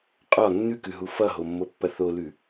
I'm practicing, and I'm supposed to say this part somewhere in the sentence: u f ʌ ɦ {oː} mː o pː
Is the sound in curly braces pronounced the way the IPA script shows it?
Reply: no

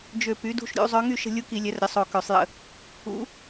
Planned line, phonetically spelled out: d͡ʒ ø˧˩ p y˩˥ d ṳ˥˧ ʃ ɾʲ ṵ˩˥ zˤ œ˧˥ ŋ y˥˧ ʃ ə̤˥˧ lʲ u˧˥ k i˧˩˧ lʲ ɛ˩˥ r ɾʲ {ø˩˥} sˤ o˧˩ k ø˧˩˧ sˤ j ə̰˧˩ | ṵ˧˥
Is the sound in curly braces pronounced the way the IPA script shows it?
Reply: no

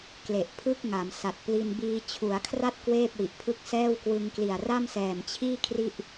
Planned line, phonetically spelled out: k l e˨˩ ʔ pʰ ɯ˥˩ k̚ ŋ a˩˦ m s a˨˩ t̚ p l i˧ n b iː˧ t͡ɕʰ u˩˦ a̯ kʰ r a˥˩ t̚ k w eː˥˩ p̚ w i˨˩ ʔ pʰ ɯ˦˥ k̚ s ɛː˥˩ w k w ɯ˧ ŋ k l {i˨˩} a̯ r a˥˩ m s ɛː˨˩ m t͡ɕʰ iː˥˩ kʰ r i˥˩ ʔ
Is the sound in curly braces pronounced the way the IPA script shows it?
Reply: yes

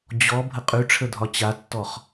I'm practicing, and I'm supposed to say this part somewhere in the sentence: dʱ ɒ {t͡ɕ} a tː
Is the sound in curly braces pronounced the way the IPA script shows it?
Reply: yes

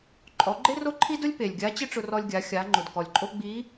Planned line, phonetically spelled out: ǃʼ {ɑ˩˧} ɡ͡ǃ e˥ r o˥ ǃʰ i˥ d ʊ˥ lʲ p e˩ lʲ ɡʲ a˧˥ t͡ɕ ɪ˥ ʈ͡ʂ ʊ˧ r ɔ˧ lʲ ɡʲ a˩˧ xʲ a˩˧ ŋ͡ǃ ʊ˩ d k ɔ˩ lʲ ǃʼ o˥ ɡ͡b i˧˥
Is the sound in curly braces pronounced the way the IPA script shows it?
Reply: no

